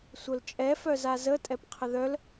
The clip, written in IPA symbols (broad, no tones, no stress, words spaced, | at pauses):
sʷœlt͡ʃʼɛ fœzazə tʼɛpqʰəðœl